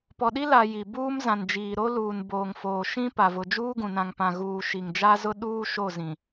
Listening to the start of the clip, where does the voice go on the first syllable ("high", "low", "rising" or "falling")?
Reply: low